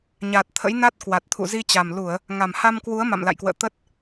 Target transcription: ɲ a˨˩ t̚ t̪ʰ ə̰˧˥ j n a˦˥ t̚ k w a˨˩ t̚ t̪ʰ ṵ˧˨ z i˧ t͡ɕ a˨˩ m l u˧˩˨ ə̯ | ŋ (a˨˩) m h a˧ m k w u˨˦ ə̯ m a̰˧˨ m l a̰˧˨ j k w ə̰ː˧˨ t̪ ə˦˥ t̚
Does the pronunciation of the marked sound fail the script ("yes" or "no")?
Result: no